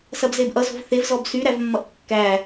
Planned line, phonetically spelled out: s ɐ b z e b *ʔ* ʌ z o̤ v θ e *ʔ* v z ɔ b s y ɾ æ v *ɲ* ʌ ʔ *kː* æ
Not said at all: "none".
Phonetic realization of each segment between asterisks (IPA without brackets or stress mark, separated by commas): ʔ, none, mː, kː